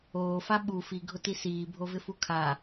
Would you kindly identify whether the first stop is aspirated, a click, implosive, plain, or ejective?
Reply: implosive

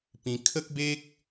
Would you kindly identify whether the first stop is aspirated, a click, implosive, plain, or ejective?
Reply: plain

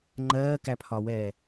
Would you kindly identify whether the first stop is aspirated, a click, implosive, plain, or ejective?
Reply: click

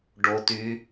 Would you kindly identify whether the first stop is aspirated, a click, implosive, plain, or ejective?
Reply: plain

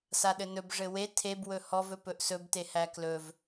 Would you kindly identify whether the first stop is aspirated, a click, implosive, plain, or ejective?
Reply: implosive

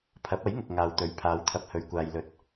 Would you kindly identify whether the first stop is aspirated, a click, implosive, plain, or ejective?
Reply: aspirated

